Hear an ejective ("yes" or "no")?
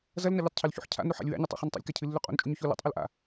yes